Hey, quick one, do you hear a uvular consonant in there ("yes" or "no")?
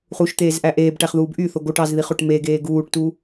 yes